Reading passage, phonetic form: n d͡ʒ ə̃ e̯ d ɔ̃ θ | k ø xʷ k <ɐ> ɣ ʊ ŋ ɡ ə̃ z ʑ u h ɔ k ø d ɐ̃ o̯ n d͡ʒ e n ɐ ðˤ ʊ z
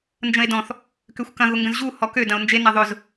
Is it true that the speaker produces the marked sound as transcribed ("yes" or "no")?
no